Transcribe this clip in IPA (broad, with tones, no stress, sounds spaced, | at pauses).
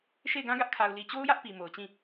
ʃ e˦˨ ɪ̯ ɡ ã˦ ɡ ä˦ ʔ kʰ a˨ ʊ̯ l i˨ t͡ɕ o˦ ʊ̯ j ä˦ ʔ p i˨ m o˨ ʊ̯ t͡ɕ ĩ˦˨